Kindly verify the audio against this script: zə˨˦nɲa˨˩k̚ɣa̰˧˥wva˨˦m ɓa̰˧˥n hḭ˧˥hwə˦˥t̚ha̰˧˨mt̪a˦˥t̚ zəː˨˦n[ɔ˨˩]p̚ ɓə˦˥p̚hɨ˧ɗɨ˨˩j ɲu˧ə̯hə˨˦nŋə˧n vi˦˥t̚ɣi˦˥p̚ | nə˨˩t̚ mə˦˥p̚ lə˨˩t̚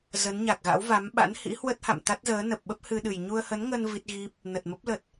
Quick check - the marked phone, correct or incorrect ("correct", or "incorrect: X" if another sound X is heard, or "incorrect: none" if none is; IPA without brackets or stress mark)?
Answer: incorrect: ə˨˩